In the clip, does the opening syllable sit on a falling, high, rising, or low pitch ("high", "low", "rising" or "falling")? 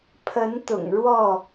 rising